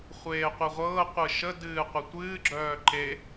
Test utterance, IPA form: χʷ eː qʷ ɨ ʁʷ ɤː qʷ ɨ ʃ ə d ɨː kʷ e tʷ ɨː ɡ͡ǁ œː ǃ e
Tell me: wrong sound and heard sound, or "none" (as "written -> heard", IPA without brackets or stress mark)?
kʷ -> qʷ